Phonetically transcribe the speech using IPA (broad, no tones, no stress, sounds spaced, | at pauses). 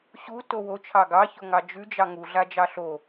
ɕ u t o w o t͡ʃʰ ɑ ɡ ɑ ç o ŋ ɑ d͡ʒ ʉ d͡ʒ ɑ ŋ u ɮ a d͡ʒ ɑ ɬ o